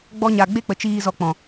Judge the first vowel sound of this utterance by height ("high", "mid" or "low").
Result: mid